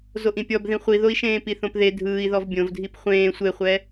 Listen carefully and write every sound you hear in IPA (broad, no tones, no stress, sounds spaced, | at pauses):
z o ʔ ĩ pʲ ɔ b ð ĩ χʷ i ð o i̯ ʃ ẽː p i θ õ p ð e dʱ ɯː i̯ ð ɔ v bʲ õ v dʱ i p χʷ ẽː sʷ e χʷ ɛ